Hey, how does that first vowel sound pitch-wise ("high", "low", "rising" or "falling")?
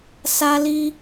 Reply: high